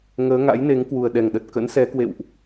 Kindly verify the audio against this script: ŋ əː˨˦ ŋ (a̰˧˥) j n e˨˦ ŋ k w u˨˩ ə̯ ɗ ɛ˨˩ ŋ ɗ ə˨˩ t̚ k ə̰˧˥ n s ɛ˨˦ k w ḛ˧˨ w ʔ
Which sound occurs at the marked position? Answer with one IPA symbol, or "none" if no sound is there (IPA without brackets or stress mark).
a̰˧˥